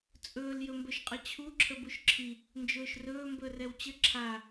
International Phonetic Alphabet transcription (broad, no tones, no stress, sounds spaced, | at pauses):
t͡sʼ ɵː l j ɵ m b ɵ ʃ qʼ ə t͡ɕʰ u ǁʰ ə b u ʃ ǁʰ i | n d͡ʒ ɵː ʃ r ɵː m b ɵ r ɛ w t͡ɕ ə ǁʰ a